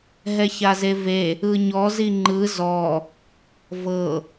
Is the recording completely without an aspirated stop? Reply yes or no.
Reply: yes